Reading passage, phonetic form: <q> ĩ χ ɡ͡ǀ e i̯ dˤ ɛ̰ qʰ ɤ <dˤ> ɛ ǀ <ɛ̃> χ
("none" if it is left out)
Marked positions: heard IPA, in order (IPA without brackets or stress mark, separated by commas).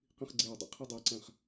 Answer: q, dˤ, æ̃